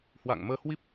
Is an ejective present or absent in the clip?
absent